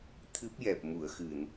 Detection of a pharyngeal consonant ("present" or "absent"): absent